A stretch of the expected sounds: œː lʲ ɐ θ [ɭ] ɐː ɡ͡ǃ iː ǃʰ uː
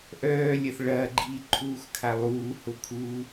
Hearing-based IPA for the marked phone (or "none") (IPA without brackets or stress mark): ɭ